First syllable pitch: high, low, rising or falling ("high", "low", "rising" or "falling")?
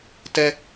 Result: high